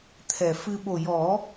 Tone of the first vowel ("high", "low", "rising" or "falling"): low